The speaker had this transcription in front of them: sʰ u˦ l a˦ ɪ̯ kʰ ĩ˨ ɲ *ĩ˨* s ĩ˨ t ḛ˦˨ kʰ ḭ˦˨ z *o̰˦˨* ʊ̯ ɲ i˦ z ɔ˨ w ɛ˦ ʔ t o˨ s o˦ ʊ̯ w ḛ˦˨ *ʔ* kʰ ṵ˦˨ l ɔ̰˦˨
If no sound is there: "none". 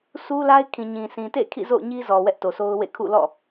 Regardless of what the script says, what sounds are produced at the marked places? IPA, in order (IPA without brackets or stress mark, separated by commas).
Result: ĩ˨, o̰˦˨, none